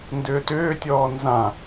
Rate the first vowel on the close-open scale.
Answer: close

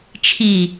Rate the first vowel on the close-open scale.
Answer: close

